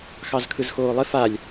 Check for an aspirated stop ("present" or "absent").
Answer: present